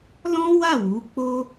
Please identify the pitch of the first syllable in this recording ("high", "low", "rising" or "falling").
high